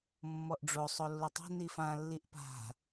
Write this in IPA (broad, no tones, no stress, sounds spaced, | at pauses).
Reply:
mː ɔ ʔ ɖ͡ʐ o sˤ o lː ɵ tˤ o̤ n i f ã lː i ʔ p a̤